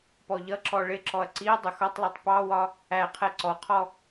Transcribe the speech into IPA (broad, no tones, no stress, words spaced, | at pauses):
pɔʎʌǁɔ ɭɪǁɔɐ̯ ǀiɐ̯ dˤʊxɒtˤlˠɜtˤ pɑwɒ | æ qʰɛǀɔqʰɔ